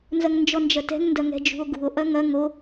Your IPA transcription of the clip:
n z ɐ ŋ n d͡ʒ ɔ n d͡ʒ ɐ t ɛ̤ ŋ n d ɐ ŋ ɛ̤ d͡ʒ ṳ o̯ ɡ ṳ o̯ ʔ ɐ ŋ ɐ ŋ o

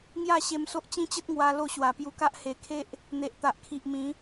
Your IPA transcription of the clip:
ŋ j a˥˧ ɕ e˧ m s o˦ ʔ t͡ɕ ĩ˦ t͡ɕ ə˦ t̚ ŋ w a˧ l o˥˧ ɕ w a˨˩ p j u˧ k a˦ ʔ h e˨˩ kʰ e˦ ʔ | n̪ e˨ ʔ t̪ a˨ ʔ kʰ i˨ ʔ m ĩ˨˦

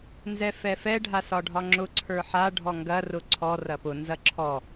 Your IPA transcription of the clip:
n z ɛ f ɛ f ɛ ɖʱ a s ɒ ɖʱ ɒ ŋ͡ǁ ʊ ǀʰ ə˞ ħ a ɖʱ ɔ ŋ ɡ ɐ r ʊ ǀʰ ɔ r ɐ p ʊ n z ɐ ǁʰ ɔ

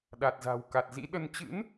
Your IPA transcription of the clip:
ɗ a˨˩ t̚ z a̤˨˩ w k a˨˩ t̚ z ḭ˧˥ ɗ ə˧ n t͡ɕ ɨ̰˧˥ n

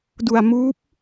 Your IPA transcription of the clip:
d u˧ a̯ m uː˦˥ p̚

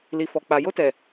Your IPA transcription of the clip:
l i˨ f ɔ˨ k͡p a˨ j o˧ t ɛ˨

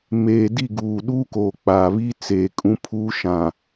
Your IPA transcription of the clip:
m eː˨ d i˦˨ ɡ uː˨ ɗ uː˦ k oː˨ k͡p aː˨ β iː˦ t͡s eː˨ kʼ ũ˦ pʰ uː˦ ʃ ã˨

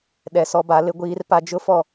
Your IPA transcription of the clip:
ɗ ɛ˨ s ɔ˨˦ b a˨˦ l ɪ˦ ɡʷ iː˦ r p a˦ d͡ʒ ʊ˦ f ɔ˦˨

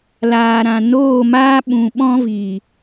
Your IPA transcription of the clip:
l aː˨ ɾ ã˨ n oː˦˨ m aː˦ ɓ ũ˨ ɓ ɔ̃˦ v i˨

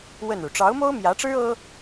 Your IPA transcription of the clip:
w ə˥˩ n ɻ u˩ ʈ͡ʂ ɑ˧˥ ʊ̯ m o˥ ʊ̯ m j ä˧˥ ʈ͡ʂ ɻ̩˥ ɤ˥

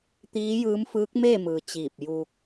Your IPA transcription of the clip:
t̪ iː˧˥ j ɯː˧˥ m f ɯː˧˥ k̚ m eː˥˨ m ɯː˩ t͡ɕ iː˧˩ p̚ j uː˧ k̚

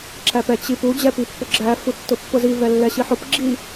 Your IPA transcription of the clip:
ǁ æ p ɛ t͡ɕ i p u d͡ʑ ɛ p i pː ʊ ɡ͡ǁ æ f u tː ʊ pː ʊ z i v ɛ lː ɛ ɕ i ħ ʊ p ɡ͡ǁ i

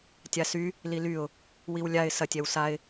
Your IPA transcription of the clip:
tʲ a s y | l i l y ʊ̯ | w i w lʲ a ɪ̯ s ɐ tʲ ɛ w s a ɪ̯

